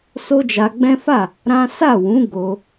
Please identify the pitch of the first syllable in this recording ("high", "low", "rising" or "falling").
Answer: high